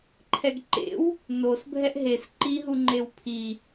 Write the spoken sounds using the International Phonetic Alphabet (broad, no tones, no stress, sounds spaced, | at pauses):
ǃʰ ɛ ɡ ǃ ḛ w | n o s bʱ ɛ ʔ ɦ e s ǃ i ɦ u ŋ͡ǃ e w pʰ i